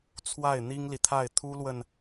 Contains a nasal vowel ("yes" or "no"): no